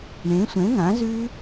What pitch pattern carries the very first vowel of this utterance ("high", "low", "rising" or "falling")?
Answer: rising